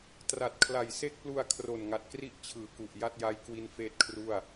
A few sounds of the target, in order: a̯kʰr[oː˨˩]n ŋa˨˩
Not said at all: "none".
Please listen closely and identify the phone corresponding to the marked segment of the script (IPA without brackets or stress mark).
o˨˩